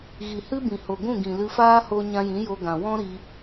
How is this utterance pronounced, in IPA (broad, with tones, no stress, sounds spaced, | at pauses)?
ɣ i˨ h ɨ˦ b ĩ˨ h o˨ ɡʷ ũ˦˨ ɡ ĩ˨ l ɨ˧ f aː˦ h o˦ ɲ ã˧ j ĩ˨˦ j o˧ ɡ ã˨ w ɔ̃˦ ɾ i˧